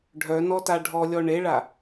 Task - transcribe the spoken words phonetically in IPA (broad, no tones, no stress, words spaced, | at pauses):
ɖʱœnɔta ɖʱɔlʲɔ ɳeɭa